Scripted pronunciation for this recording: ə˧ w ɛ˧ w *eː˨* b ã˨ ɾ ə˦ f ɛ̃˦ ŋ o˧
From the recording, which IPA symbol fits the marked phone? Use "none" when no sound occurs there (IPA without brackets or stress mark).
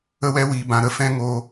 iː˨